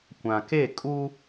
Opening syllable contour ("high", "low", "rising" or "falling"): low